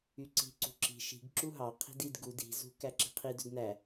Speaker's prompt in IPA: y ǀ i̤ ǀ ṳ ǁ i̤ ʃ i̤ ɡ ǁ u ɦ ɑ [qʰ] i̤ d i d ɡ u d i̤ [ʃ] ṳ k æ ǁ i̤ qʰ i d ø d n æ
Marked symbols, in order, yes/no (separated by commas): yes, no